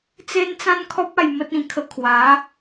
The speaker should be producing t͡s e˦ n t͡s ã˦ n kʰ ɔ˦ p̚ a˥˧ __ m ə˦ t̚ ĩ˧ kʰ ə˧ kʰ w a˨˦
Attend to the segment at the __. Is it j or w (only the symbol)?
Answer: j